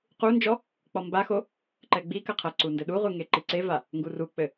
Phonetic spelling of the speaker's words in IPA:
q u n d͡ʒ ɔ | k͡p ɔ m b a x o | ǃ ɛ ɡ͡b i k ɐ qʰ ɐ ǀ u n d ɘ ɗ u ʁʷ ɨ ŋ e ǃ i ǀ e v a | ŋ ɡ u r u k͡p ɘ

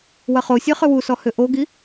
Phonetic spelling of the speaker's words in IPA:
w ɐ χ o sʲ ɜ χ ʏ w u s ɔ h ʏ ʔ o ɡ i

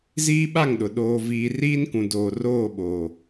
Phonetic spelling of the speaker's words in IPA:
z iː˦ ɓ a˦˨ ŋ ɗ ʊ˨ ɗ oː˦ v iː˦ r iː˦ n k ũ˨ d oː˨ r oː˦˨ ɓ oː˨

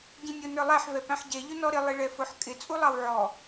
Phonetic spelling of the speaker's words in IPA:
ɟ ĩ nʲ ʊ n ə˞ lˠ æ ħ v ɛ p æ̃ ħ ɟ ɛ ʎ ʊ n ɔ ɾ ɪ lˠ i ɭ ɛ f ʊ ħ kʼ ɪ t͡sʼ u lˠ ɑ w ʕ ɔ

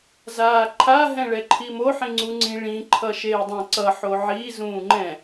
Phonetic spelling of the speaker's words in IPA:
z aː ǃʰ a ɦ ɛ̃ ɭ ɛ ǃʰ i m o ħ ĩ ŋ͡ǀ u ŋ͡ǀ ĩ ɭ ĩ ǃʰ ʌ ʃ eː dˤ ɛ̃ ǀ ʌ ħ o ʕ i z ũː ŋ͡ǃ ɛ̃

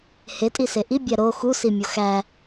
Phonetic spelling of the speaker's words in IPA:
h e tʼ i s e ʔ i bʲ æ ɾ o x u s i mʲ o x æ

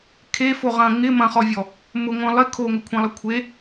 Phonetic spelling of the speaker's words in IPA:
kʰ e f o ʁ ɐ̃ ŋ ɪ m ɐ̃ χ ɔ vʲ ɔ | m ʊ ŋʷ œ̃ lˠ ɪ kʰ o ŋ ʏ kʷʰ ẽ lˠ ɐ kʷʰ e

